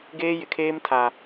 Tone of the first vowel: high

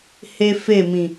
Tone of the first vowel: high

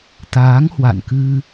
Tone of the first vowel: rising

